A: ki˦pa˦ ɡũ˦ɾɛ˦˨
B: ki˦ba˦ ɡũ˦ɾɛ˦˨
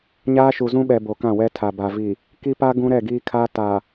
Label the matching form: A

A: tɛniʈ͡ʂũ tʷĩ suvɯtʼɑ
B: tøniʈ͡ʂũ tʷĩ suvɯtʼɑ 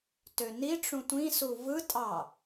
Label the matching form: B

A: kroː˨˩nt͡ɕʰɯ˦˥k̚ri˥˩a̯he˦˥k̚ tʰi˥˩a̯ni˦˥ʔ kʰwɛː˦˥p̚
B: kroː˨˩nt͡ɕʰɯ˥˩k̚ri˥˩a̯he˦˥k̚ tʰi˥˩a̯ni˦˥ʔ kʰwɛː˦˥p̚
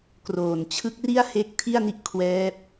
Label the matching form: A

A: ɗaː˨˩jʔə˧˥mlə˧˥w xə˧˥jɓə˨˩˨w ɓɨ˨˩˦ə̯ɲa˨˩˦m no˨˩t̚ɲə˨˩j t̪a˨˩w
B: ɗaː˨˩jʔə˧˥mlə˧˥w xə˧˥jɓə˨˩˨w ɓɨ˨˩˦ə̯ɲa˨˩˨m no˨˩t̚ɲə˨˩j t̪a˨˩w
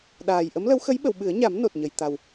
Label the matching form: A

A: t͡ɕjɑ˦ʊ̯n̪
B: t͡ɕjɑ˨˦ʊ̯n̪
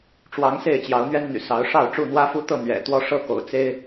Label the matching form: B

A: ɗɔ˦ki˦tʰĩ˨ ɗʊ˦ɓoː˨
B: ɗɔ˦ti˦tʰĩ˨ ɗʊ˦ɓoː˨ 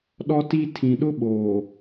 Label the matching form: B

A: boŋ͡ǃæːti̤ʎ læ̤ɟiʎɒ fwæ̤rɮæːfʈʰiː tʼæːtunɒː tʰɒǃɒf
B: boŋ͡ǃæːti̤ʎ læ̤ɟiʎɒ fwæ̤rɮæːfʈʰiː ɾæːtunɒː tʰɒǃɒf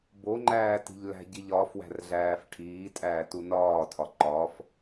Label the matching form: A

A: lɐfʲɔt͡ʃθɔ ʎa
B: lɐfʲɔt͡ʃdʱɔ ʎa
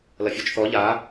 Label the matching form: A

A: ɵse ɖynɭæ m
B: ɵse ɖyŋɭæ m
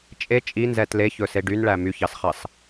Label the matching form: A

